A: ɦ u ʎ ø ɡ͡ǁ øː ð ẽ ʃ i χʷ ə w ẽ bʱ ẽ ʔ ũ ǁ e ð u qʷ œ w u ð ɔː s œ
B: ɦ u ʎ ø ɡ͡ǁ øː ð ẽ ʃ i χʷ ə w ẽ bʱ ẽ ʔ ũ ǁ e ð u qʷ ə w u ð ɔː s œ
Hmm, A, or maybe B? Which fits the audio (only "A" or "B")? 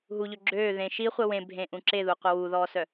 B